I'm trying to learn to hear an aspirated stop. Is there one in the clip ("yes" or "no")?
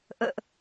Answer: no